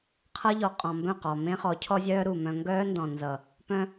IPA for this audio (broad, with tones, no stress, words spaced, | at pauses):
qʰʌ˦ʎɔ˨ qʼɔ̃˨mbœ̃˦˨qɒ˨ mẽ˦χɔ˨˦cʰɔ˦zʲœː˦ ɾu˨mœ̃˦ ŋɡœː˦ndɔ̃˨ nzʌ˨ | pœ̃˦